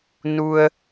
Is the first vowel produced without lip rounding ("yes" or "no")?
no